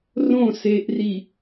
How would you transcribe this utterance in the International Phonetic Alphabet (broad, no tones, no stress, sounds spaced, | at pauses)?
r õ s e ʔ r i